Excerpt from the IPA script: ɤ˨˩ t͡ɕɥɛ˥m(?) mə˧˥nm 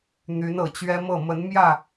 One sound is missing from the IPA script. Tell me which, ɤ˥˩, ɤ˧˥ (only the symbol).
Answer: ɤ˥˩